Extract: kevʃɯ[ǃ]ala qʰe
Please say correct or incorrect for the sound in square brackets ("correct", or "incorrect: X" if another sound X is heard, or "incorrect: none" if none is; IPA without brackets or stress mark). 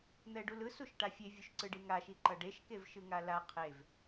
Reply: incorrect: ŋ